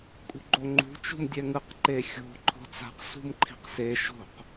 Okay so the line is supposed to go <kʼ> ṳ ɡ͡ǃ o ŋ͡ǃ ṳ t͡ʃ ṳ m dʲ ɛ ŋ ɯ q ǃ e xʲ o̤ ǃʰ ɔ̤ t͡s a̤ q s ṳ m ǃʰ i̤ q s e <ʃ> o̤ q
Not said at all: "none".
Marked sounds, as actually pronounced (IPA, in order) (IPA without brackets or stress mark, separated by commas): kʼ, ʃ